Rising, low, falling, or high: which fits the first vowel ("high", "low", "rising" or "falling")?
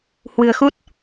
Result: low